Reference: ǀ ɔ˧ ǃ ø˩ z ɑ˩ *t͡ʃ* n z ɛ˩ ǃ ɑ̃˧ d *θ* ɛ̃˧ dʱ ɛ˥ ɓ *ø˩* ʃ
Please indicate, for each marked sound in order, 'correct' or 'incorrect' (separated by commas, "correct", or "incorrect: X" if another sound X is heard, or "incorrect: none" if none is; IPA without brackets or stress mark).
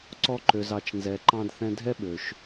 correct, correct, correct